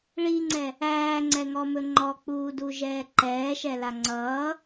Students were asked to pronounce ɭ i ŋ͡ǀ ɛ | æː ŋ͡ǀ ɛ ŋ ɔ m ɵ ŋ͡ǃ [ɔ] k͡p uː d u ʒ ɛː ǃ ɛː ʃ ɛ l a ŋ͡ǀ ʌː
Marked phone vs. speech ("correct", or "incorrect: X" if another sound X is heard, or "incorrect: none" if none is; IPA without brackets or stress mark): correct